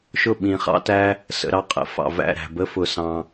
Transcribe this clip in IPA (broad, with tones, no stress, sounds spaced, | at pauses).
ʃ ʊ˦˨ ɓ ĩ˨ χ ɑ̰˦ t æ˦ | s ə̰˨ ɾ ɑ˧ qʼ ə̰˨˦ f ɑ̰˨ v æ̰˦˨ ɾ æ̤˨ b ə˦ f ʊ˧ s ɑ̃˧